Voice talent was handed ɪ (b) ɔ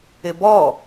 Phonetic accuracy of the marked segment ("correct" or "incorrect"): correct